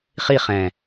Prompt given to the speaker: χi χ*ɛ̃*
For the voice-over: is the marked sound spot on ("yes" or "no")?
yes